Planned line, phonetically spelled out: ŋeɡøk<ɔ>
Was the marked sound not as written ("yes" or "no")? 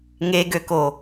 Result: yes